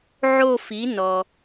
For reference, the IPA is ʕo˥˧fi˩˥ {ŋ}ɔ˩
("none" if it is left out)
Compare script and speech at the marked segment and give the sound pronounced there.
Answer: n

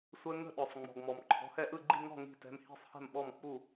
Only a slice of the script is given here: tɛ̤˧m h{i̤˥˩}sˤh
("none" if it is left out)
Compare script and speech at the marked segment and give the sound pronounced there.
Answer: i̤˥˩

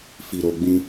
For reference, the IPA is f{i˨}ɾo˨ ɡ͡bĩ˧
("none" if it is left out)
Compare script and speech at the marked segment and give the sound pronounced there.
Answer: i˨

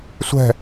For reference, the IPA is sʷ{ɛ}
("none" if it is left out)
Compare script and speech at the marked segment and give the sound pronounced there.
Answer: ɛ̤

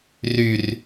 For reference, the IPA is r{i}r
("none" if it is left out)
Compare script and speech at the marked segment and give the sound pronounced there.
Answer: y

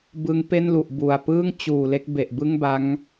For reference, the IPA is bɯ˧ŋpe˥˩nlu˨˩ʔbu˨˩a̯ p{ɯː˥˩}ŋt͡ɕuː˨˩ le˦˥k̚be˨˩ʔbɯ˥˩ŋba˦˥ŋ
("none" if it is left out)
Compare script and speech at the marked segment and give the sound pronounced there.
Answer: ɯː˥˩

